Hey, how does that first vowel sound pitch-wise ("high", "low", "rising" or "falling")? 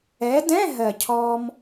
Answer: rising